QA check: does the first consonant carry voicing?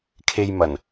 no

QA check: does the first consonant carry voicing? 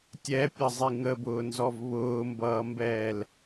no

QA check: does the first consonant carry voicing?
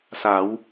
no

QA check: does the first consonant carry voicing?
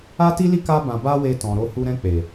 no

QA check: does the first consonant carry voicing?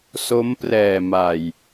no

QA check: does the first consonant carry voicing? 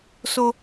no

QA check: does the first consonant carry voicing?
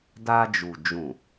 yes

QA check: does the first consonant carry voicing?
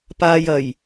no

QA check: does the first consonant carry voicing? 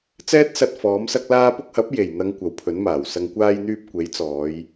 no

